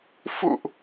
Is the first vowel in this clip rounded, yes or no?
yes